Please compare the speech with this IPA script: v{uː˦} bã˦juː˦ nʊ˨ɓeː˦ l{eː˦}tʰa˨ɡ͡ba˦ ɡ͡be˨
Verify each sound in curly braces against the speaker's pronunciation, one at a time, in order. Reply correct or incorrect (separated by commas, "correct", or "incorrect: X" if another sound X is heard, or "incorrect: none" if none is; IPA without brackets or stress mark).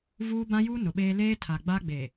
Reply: correct, correct